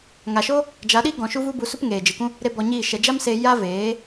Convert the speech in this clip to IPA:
ŋ a˨ ʃ o˦ | d͡ʒ a˨˦ ɗ i˦ ɡ ɔ̃˨ ʃ u˦ v u˦ b u˧ s u˦ p ŋ eː˨ d͡ʒ ɨ˨ k ũ˦ | ɾ e˦ b ɔ˧ ɲ iː˦˨ ʃ ɛ˨ d͡ʒ a˦ m s e˧ j a˦ v eː˨˦

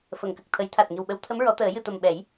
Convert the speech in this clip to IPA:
f ə˨˩˨ ŋ k ə˨˩ k̚ t̪ʰ ə˨˩˦ j t̪ʰ a˨˩ t̚ ŋ i˨˩ w ɓ ə˧˥ w t̪ʰ ə˧˥ m ɹ ɔ˨˩˦ t̪ əː˨˩˦ j ɨ˨˩˨ t̪ ə˨˩ m ɓ ɛ˨˩˦ j

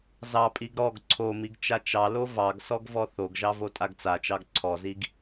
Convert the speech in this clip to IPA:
z ɑ pʼ i ɡ ɾ ɔ ɡ ǀʰ o m i ɡ t͡ʃ a t͡ʃ ɑ l o v ɑ ɡ s ɔ ɡ v ɔ θ o ɡ ʒ ɑ v o tʼ a ɡ t͡s a t͡ʃ ɑ ɡ ǀʰ ɔ z i ɡ

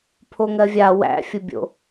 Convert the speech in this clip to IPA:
pʰ o ŋ ɜ vʲ a w æ̰ fʲ ʊ bʲ o̰

